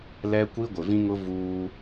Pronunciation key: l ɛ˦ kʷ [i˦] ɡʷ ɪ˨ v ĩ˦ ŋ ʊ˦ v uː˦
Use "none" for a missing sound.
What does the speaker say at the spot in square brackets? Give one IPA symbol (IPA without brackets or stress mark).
i˦